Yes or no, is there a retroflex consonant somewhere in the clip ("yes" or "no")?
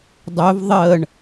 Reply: yes